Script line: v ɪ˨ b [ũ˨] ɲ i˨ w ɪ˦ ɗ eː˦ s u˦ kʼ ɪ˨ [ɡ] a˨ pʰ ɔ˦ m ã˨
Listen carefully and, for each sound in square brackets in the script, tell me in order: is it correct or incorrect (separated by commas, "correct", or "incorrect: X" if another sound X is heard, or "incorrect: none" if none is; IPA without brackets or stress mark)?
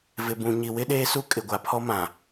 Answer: correct, incorrect: ɡʷ